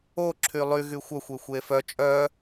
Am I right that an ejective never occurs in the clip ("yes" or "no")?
no